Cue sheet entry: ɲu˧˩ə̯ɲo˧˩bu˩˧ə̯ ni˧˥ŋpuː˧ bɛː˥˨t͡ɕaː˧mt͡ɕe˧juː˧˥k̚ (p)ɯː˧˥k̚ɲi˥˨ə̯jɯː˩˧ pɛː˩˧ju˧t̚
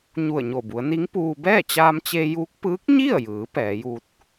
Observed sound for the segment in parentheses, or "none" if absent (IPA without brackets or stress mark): p